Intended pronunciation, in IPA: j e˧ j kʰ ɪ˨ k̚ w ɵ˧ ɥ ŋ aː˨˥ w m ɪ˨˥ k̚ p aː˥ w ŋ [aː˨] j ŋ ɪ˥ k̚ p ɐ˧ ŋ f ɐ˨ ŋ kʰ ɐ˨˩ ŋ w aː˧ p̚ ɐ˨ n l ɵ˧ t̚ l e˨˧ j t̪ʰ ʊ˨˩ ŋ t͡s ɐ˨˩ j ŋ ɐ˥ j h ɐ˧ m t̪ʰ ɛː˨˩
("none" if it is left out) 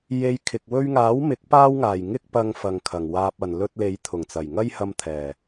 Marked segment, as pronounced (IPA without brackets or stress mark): aː˨˩